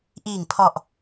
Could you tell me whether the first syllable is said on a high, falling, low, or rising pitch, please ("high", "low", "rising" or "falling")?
low